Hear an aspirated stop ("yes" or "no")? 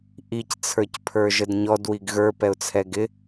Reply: yes